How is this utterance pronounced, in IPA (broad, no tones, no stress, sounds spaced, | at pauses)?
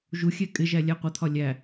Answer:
ʒ u xʲ ɛ kʼ ɪ ʒ æ lʲ æ qʷ ʌ t̪ʰ ɒ lʲ æ